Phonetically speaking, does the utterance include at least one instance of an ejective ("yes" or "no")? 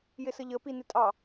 yes